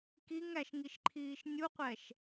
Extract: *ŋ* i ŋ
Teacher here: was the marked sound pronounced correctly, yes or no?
no